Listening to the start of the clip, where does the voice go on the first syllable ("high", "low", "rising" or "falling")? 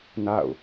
falling